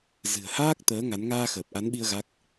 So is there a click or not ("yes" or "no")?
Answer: no